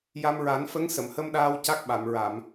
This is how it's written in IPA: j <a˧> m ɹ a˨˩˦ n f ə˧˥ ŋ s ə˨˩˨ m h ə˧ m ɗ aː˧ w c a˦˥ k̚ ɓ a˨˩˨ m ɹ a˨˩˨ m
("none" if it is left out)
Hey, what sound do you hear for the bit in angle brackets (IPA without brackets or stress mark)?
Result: a˧